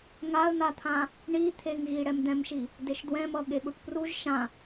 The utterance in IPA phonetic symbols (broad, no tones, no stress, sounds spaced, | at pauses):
ŋ a ə̯ n̪ a t̪ʰ ã | ɳ i t̪ʰ e ŋ ɣ i ɽ ɛ m d ɛ̃ m ʃ i | d e ʃ d w ɛ̃ m ʌ ɠ e ɠ u ʈ p r u ʒ ʃ ã